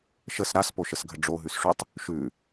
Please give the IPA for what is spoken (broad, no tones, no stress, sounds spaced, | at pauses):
ʃ ə s ɾ a s p o ʃ ə s ɡʱ ə ɖ͡ʐ o ɦ ʉ s ʂ ʉ tˤ | ʃ ʉ